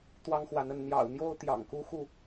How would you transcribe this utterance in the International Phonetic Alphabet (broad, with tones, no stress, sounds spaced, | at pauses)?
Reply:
t̪ w ɑ˦ ŋ x w a˨˦ n ə˨˦ n n̪ j ɑ̰˨˩ ʊ̯ n̪ j o˦ ʊ̯ t̪ j ɑ̰˨˩ ŋ k u˦ x u˥˨